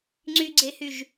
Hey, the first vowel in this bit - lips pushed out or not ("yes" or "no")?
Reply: yes